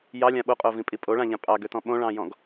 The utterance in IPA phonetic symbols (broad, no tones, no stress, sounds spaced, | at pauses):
j ɑ lʲ ã ɓ o qʼ o v ĩ pʼ i pʼ o ɭ ã ʎ ã pʼ ɑ ɡ ø t ɔ̃ ɓ õ ɭ ɑ̃ j ɔ̃ ɡ